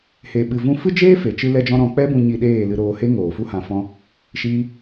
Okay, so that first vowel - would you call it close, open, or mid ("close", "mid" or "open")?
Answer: mid